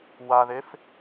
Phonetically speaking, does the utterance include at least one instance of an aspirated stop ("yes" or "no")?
no